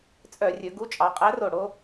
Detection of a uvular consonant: present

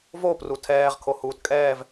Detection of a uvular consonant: present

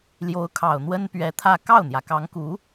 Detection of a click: absent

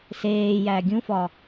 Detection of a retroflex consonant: absent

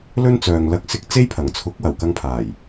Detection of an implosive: absent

